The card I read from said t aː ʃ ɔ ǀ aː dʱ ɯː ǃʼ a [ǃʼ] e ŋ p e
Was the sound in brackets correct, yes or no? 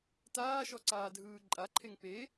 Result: no